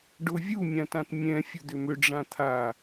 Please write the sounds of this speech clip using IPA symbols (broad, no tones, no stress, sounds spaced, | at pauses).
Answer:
ɖ ʊ vʲ u mʲ ã t ã t mʲ ɛ̃ fʲ ʊ d̪ ʏ m ʏ ɖ͡ʐ ã t̪ʰ a